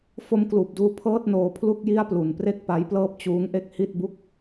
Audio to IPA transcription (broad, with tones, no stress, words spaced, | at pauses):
fo˧mkluː˨˩p̚duː˧ pʰɤː˥˩t̚noː˧ pʰlu˥˩k̚ji˥˩a̯plu˨˩n pre˥˩k̚pa˦˥jplɤː˥˩p̚ t͡ɕuː˦˥ŋʔe˥˩k̚ hi˥˩t̚bu˥˩k̚